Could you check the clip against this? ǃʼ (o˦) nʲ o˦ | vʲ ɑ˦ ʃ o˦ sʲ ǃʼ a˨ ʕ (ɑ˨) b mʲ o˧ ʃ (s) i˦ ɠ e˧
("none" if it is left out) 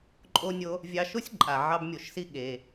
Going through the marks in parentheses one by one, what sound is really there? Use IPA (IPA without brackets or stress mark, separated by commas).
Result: o˦, ɑ˦, s